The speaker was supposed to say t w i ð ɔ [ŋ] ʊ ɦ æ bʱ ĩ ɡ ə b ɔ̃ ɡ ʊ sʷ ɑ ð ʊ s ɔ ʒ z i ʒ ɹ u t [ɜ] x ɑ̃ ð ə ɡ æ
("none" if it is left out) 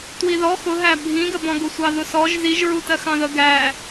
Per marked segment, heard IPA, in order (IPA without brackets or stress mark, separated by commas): x, ɜ